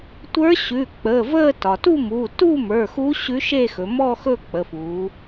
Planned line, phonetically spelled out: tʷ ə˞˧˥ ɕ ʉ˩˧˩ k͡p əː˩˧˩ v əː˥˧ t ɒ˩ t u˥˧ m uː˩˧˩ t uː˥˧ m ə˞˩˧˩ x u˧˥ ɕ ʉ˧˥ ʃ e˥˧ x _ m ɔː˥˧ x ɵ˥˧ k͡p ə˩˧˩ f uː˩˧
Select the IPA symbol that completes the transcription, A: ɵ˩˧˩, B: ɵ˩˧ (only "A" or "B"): B